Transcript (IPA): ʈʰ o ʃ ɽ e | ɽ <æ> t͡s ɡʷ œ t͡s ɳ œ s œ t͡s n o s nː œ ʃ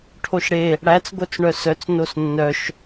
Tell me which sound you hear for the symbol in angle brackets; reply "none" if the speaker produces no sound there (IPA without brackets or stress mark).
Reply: æ